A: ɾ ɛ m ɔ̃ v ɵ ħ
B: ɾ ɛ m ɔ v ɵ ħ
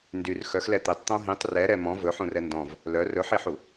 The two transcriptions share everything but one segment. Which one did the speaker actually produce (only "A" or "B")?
A